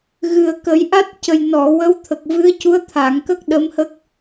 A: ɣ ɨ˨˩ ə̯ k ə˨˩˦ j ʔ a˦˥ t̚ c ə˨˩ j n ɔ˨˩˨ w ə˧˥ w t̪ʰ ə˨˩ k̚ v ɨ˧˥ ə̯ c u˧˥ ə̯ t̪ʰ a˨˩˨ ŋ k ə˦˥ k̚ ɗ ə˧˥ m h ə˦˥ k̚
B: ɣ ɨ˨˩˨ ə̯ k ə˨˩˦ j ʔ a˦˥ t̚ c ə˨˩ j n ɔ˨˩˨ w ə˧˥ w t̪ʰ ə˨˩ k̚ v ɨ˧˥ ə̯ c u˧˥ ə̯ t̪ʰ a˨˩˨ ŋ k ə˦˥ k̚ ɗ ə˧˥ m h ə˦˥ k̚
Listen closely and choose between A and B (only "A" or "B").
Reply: A